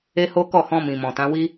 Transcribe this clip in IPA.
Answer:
e˦ h o˦ k ɔ˦˨ h ɔ̃˧ m ĩ˨ m ɔ̃˨ t ã˨˦ w i˦

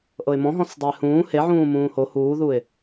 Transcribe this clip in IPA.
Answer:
ʔ ɤ ɪ̯ m ɔ̃ ɦ ɔ̃ s dˤ o ɪ̯ h ũː h e ʕ ũː m ũː h o h uː ð u ɪ̯

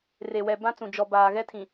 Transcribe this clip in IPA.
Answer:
r e˨ w ɛ˨ b ã˦ t͡s ũ˨ d͡ʒ ɔ˨ b aː˨ ɣ ɛ˦ tʰ ĩ˨

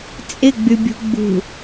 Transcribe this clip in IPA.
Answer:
t͡sʼ ɪ ɡ͡b y bʲ ṳ ɡ͡b ṳ

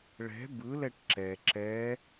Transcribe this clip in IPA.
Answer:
ɭ ɛ̤ b ɯ l ɛ ʈ ǁ ɛ ǁ ɛ

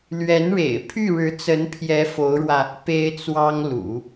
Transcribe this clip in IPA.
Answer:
l ɥ ɛ˧˥ n ɻ ḛ˨˩ ɪ̯ pʰ y˥˩ ɻ ɻ̩˧˥ t͡s ə˧˥ n pʰ j ɛ˧˥ f o˧˥ ʊ̯ ɻ w ä˧ | p e˥ ɪ̯ t͡s w ɑ˥ ŋ l ṵ˨˩˦

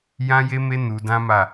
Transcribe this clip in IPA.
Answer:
j ã˦ j e˦ m e˦ n u˧ d ã˦ m a˦˨

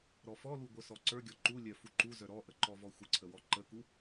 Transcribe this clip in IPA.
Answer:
ɾ ɔ f ɔ l u ɡʷ œ s ɔ ǀ ə˞ ɡʲ ɔ ǃ u lʲ œ f u ǃ u z œ ɾ ɔ ʔ ə ǃ ɔ v ɔ xʷ ə ǀʰ ə w ɔ ǃ ə k u

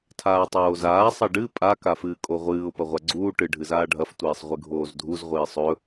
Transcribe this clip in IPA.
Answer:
tʰ aː tˤ oː z aː sˤ ɐ ɖ ɨ pʼ a k a f ɨː kʼ o ʁʷ ɨː ʊ̯ p ɐ ʁʷ a ɡ͡ǀ uː ʈ ɨ ɖʱ ɨ z aː ɖʱ ɐ f tʷ iː sˤ ʁʷ ɨ ɡʱ oː z dʱ u z ʁʷ iː sˤ ɵ

